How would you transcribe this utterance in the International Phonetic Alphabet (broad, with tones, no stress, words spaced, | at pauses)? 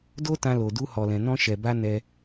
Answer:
do˦tã˧lo˨ du˧hɔ˨lɛ̃˨ nɔ̃˧ʃɛ˨ba˧ nɛ˧